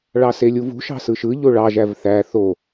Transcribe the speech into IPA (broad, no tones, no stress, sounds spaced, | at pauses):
ɭ ɑ s e lʲ u v ṳ ʃ ɑ̤ s ɯ ʃ ɯ ʎ o ɭ ɑ ʒ æ v θ æ θ o